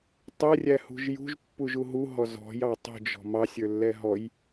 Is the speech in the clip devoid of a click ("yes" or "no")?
yes